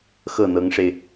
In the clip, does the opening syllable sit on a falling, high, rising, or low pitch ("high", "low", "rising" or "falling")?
falling